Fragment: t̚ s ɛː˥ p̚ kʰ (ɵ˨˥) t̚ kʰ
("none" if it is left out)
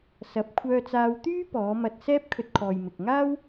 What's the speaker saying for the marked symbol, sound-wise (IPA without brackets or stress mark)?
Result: ɵ˧